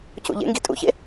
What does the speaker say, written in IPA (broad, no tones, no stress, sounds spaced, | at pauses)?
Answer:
c ṵ ʎ ḛ ŋ ɡ i tʼ ṵ ç ḛ